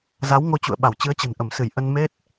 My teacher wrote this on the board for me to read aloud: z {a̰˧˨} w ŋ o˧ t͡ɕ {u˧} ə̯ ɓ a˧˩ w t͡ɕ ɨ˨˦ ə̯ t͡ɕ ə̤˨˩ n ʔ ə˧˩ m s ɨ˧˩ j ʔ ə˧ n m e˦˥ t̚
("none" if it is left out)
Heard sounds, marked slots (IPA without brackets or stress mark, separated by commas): a˨˦, ṵ˧˨